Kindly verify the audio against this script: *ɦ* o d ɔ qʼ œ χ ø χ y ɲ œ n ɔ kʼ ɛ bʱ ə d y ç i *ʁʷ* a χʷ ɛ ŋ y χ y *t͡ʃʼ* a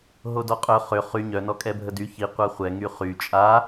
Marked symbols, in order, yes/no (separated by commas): yes, no, yes